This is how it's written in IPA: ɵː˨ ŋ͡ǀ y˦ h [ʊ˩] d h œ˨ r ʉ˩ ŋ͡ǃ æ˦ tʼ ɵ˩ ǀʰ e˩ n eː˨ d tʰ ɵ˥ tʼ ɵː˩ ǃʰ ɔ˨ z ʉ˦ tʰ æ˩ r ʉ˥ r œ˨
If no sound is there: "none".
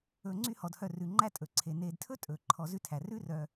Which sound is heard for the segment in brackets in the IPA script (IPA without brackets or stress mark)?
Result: ɔ˩